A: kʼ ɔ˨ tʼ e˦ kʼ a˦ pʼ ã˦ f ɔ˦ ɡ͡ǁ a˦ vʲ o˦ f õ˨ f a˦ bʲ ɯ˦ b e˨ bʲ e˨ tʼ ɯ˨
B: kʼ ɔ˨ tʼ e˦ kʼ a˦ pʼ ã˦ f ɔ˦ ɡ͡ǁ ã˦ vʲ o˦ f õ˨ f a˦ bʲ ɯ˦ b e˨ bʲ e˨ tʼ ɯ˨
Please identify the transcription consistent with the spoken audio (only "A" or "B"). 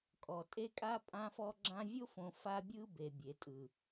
B